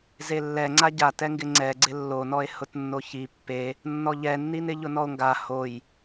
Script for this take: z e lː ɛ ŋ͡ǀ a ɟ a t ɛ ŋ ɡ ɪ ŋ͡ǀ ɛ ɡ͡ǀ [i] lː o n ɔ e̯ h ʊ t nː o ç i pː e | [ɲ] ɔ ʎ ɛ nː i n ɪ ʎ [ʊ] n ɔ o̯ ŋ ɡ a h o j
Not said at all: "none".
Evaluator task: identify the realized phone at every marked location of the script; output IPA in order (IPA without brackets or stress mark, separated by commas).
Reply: ɪ, nː, ʊ